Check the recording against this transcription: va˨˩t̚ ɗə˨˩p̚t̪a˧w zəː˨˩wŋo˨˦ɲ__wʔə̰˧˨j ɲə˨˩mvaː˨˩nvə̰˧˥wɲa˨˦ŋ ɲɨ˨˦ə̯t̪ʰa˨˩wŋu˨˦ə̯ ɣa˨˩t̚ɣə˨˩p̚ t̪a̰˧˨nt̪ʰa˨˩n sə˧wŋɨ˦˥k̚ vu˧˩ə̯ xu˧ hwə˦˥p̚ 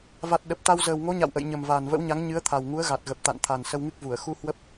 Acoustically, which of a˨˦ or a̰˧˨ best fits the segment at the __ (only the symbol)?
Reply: a̰˧˨